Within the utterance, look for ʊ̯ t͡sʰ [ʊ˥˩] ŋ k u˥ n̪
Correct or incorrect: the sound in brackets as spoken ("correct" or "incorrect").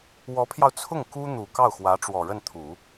correct